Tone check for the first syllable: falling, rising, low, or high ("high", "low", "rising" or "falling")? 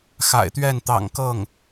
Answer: low